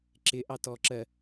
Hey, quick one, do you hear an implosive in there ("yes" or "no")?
no